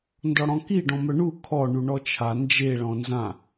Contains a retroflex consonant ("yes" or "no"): yes